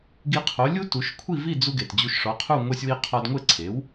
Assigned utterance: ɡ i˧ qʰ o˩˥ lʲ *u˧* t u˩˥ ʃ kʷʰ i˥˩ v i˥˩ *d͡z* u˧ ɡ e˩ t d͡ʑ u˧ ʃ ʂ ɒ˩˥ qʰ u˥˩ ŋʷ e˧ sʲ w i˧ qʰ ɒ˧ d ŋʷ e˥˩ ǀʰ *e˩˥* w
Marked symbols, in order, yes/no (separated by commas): no, yes, yes